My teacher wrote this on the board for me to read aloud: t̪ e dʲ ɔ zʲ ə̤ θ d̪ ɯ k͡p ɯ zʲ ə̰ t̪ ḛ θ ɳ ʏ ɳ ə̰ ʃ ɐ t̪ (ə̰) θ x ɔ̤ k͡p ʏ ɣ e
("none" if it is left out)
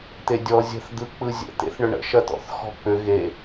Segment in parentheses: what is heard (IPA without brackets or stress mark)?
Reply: ɔ̰